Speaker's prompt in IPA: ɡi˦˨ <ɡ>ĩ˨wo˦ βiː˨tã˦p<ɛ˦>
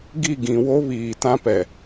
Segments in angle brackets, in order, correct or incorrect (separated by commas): correct, incorrect